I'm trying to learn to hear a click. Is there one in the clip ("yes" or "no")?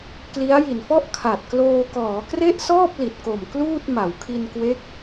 no